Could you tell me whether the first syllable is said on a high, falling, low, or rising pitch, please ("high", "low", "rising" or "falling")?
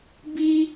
high